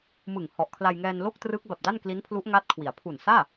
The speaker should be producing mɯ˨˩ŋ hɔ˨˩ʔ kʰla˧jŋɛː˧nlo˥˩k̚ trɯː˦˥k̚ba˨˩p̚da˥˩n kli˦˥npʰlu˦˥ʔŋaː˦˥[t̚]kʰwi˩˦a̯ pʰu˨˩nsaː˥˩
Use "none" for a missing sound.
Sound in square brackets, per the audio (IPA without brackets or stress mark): t̚